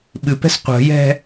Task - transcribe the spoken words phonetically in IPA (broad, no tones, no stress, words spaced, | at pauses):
ɓɨpɛ̤s qʷə̤jɛ̤